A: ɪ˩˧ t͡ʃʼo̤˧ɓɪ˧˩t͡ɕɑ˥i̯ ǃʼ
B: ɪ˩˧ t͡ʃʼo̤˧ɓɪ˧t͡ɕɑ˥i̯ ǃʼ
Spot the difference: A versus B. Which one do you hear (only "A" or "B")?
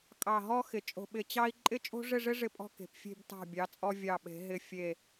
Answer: A